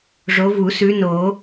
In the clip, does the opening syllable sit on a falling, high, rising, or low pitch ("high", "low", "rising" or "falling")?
rising